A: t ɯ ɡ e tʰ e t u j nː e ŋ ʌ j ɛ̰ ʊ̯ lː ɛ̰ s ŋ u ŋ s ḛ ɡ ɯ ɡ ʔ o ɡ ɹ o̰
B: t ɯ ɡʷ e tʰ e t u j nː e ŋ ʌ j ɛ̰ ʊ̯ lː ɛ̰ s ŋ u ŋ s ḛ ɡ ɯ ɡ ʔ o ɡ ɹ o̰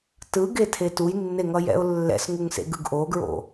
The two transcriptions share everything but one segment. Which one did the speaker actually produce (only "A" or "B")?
A